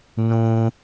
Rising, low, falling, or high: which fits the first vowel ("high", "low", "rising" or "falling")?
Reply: high